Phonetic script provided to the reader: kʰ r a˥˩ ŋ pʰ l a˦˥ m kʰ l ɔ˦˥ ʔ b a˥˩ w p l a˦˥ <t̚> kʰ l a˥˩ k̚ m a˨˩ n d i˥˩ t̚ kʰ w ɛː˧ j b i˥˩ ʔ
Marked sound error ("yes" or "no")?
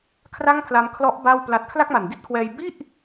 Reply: no